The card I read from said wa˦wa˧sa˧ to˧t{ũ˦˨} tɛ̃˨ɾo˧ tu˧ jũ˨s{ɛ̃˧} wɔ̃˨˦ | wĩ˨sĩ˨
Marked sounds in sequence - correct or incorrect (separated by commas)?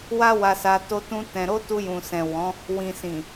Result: incorrect, incorrect